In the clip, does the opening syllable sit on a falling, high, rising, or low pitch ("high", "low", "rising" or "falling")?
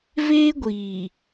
high